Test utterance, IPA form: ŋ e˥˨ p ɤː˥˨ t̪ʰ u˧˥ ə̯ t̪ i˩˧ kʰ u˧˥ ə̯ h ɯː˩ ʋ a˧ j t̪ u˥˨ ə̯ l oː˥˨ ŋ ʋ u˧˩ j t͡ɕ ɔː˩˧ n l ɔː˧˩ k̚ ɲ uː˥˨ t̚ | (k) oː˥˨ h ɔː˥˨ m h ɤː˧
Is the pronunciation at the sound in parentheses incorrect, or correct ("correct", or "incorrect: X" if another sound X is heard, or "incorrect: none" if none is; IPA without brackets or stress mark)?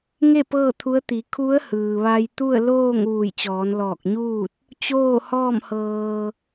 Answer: incorrect: t͡ɕ